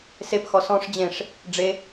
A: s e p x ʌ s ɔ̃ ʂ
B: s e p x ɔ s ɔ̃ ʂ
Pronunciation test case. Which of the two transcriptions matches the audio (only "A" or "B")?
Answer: B